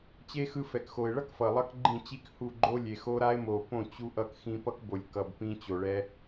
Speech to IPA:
t͡ɕ e˦ x ɯ˧ f ɛ˨ k x o˨ ɪ̯ ɭ ʌ˦ k f ʌ˨ lˠ ʌ˦ k ɡ͡ǃ ĩ˦˨ t͡ɕ i˦ k h u˦˨ ɡ͡ǃ o˦ lʲ e˨ x o˦ ɾ a˦ ɪ̯ m o˨ p õ˦˨ t͡ɕ u˦ ʔ ʌ˧ k x ĩ˧ p ʌ˦ k b o˨ lʲ k ʌ˨ b p ĩ˧ t͡ɕ o˨ ɭ ɛ˧

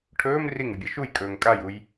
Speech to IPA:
ʈʰ ɵː m r i ŋ ʉ bʲ ɐ ʃ u j kʼ ɵː ŋ kʼ a j u j

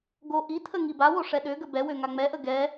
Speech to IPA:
ɡ o ʔ i tʰ ə ŋ i b a w o ʂ ɛ ɗ ø ɡ ə b ɛ w ø ŋ a ŋ͡m ɛ ʔ ə ɡ ɛ

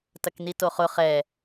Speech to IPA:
t ɐ k n i t o χ ʊ χ ɛ

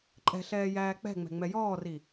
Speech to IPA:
ǃʼ ɛ̤ ɬ ɛː j æː k͡p ɛ̤ ŋ͡m ɛ̤ ŋ͡m ɛ j ɔː r i

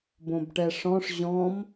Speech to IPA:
b õ b ʈ ɛ ʂ ɔ̃ ʂ ʑ ɔ̃ m

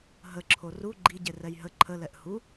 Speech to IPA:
ɦ ə ǁʰ o r u ɡ͡ǃ i ɟ e r ɛ j ɦ ə ǃʰ ə l ɛ ʔ h u

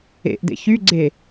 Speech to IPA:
ḛ ʔ d ḛ ç y ɡ͡ǀ e

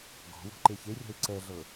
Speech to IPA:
ɡ ɔ̤ w ɔ̤ ǃ e ç e rʲ ɔ̤ ɪ̯ ǀ ɛ ɮ ɤ

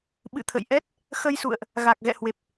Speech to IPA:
ɓ ɨ̰˧˨ t̪ʰ ə̰˧˨ j ʔ ɛ˦˥ t̚ | x ə˧ j s ṵ˧˨ ə̯ ʔ | ɣ a˨˩ k̚ ɣ ɛ̰˧˨ h w e˨˩ p̚

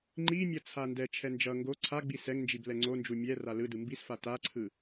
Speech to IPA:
ŋ͡ǃ i mʲ ʌ t͡sʰ a n d ɛ t͡ʃʰ ɛ n d͡ʒ ʌ ŋ ɡ o ǀʰ a ɡ͡b i s ɛ ŋ n d͡ʒ i b l ɛ ŋ͡ǀ o n d͡ʒ u mʲ ɛ r a l ɯ d ɯ m b i s f a t a ǀʰ ɯ

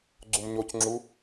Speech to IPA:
ɡ͡ǀ u m ɲ o c ŋ͡ǁ u

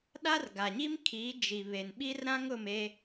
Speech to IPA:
ɗ a˦ r ɡ a˨ ɲ i˦ m kʰ i˨˦ d͡ʒ i˨ β e˨ n ɓ i˦ r ɾ ã˦ ŋ ʊ˦˨ m e˦

